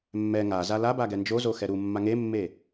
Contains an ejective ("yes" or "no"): no